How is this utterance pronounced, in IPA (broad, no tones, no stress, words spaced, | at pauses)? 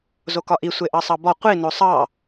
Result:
zokɒʔi sʷeʔɑsˤɑbɒ qʷi nosˤɑ